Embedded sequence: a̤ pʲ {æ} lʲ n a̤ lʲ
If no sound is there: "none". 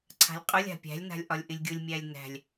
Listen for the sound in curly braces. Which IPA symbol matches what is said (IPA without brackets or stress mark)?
æ̤